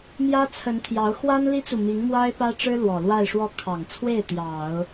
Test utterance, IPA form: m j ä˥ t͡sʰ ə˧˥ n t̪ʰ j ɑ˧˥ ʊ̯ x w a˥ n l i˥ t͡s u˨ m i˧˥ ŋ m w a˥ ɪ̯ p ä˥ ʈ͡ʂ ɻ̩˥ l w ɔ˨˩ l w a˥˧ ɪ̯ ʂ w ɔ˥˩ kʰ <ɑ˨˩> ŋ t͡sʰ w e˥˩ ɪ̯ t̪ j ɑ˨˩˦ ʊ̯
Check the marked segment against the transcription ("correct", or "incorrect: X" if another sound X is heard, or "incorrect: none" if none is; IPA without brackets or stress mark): correct